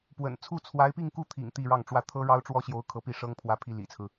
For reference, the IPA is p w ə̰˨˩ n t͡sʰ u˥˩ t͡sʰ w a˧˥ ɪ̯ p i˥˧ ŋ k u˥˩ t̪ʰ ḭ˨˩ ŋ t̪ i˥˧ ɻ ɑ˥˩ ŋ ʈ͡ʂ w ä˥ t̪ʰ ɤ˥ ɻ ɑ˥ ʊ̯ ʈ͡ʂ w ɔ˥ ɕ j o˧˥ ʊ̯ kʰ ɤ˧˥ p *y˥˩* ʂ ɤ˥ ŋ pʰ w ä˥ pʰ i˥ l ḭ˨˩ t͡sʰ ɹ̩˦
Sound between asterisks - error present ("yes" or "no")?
yes